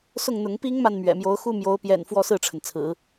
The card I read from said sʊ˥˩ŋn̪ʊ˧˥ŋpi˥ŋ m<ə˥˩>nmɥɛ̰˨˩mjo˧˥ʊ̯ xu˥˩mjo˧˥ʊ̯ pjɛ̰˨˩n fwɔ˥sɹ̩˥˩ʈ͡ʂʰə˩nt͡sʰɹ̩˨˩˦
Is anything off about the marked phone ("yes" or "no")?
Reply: yes